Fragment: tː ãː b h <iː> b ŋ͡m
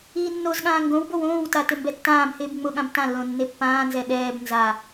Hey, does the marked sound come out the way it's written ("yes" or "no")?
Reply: no